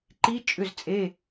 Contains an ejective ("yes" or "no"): yes